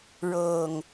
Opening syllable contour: low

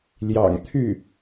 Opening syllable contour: low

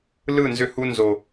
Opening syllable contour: falling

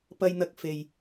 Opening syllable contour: high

